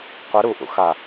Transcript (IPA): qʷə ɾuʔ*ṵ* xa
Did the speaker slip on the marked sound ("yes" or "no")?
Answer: no